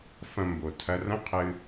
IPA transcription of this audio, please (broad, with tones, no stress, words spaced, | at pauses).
fɐ̃˧mbo˩ tʰɐ˧rɐ̃˥qʰɨ˧